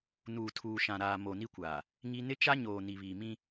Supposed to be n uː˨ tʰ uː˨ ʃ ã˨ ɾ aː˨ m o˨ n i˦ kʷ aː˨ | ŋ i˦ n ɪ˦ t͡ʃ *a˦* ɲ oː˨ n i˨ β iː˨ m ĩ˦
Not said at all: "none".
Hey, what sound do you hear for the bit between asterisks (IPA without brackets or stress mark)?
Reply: a˦